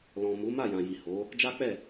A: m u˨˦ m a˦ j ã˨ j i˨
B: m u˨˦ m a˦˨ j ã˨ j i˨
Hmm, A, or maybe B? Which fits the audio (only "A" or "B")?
B